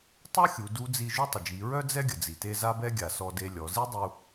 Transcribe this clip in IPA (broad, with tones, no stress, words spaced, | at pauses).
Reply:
tˤo˥xʲu˩˧ du˧˥d͡zi˧ ʒu˥tˤə˩ d͡ʒi˩˧ɹœ˥ d͡zɛ˥ɡʲə˩ d͡zi˩te˧ za˥bɛ˥ ɡʲa˩sɔ˧de˧lʲɔ˩˧ zi˥dˤu˧